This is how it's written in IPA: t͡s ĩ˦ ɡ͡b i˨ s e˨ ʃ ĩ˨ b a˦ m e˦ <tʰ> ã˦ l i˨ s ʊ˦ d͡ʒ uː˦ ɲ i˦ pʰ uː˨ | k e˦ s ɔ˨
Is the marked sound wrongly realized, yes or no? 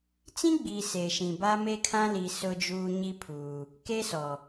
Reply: yes